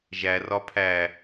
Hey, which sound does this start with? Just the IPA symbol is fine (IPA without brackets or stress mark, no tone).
ʒ